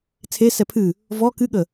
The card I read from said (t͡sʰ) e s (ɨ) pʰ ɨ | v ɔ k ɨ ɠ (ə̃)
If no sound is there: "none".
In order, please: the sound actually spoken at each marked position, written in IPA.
t͡sʰ, ɛ, ə

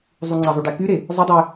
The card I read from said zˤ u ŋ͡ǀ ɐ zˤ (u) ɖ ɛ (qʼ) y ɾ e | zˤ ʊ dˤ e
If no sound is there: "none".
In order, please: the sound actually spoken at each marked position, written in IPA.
y, k

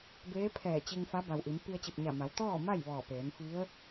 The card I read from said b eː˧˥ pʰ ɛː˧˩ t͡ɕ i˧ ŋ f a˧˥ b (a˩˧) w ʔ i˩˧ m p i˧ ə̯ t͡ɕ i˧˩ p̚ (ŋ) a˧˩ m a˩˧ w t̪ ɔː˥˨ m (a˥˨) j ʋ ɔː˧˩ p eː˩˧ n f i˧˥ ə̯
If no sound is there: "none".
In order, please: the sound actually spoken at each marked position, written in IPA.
a˩, ɲ, a˥˨

